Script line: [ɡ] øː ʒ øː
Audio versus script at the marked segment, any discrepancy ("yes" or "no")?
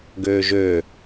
no